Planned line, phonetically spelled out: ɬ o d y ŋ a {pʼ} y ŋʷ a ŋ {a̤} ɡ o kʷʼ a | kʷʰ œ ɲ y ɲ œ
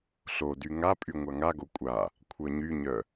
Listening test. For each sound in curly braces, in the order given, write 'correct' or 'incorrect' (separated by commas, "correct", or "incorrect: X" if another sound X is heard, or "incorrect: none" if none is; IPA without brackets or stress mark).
correct, incorrect: a